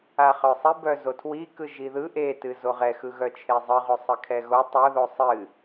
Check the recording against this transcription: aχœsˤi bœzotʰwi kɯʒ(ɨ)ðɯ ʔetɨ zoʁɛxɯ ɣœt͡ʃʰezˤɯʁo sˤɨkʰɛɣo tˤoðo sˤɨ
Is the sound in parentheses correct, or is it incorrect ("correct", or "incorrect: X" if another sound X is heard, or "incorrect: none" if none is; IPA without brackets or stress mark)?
incorrect: i